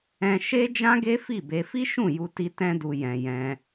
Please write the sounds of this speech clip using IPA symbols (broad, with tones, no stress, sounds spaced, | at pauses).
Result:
ɛ̃˧ ʃ e˦ d͡ʒ ã˦ ɡ e˦ f i˦˨ b e˧ f i˦ ʃ ũ˦˨ j u˧ t i˧ t ɛ̃˦ d u˧ j ɛ̃˧ j ɛ̃˧